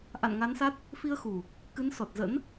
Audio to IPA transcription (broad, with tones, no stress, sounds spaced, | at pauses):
ʔ a̰˧˨ n ŋ a˨˦ n s a˦˥ t̚ | f i˧ ə̯ x u˨˩ | k ɨ˨˦ n s ɔ˨˩ t̚ z ə̰˧˥ n